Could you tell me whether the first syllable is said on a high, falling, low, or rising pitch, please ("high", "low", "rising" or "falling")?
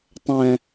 low